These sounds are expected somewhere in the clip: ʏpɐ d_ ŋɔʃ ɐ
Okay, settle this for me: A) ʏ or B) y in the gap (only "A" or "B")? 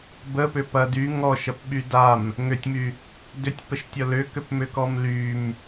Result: B